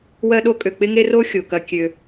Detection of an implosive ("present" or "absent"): present